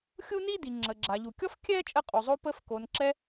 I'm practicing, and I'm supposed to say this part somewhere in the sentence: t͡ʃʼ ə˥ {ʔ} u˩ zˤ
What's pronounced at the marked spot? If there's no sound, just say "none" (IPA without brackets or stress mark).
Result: qʼ